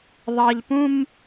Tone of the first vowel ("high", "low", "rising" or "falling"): low